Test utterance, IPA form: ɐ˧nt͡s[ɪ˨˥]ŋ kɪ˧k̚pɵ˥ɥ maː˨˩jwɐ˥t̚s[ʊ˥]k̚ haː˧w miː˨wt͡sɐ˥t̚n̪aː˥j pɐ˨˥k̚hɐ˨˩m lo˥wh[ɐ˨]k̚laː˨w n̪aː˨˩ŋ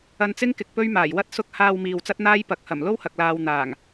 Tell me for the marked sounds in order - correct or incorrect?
incorrect: ɪ˥, correct, correct

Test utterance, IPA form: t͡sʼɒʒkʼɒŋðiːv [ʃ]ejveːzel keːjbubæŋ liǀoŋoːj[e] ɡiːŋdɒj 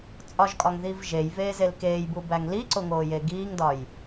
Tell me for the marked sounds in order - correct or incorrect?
incorrect: ʒ, correct

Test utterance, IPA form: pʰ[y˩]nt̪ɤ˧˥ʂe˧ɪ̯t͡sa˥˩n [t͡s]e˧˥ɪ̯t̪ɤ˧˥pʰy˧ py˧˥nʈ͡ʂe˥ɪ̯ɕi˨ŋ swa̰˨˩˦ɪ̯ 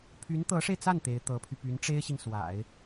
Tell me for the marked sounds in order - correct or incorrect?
incorrect: y˧˥, incorrect: t̪

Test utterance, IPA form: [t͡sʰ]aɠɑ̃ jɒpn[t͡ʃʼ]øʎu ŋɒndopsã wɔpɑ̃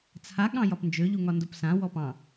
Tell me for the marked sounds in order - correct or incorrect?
correct, incorrect: d͡ʒ

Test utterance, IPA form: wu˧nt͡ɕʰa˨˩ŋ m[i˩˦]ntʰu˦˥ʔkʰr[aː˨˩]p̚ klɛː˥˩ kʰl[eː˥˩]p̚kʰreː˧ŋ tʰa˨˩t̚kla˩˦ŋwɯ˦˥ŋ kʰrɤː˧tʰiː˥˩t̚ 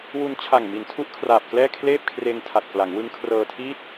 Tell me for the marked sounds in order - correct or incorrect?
correct, correct, correct

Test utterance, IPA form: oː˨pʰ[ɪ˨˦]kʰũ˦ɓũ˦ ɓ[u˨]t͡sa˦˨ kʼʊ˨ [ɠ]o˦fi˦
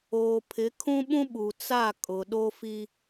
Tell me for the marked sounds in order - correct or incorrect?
correct, correct, incorrect: ɗ

